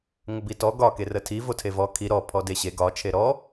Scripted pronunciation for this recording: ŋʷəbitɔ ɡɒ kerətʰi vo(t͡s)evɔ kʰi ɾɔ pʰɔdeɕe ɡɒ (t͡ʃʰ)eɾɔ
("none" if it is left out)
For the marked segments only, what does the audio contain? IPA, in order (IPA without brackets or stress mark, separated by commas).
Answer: tʰ, t͡ʃʰ